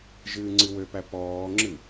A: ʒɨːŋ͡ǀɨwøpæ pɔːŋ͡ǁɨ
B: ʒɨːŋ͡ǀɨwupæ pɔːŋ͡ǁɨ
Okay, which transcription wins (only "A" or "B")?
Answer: A